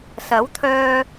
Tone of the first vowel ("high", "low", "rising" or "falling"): rising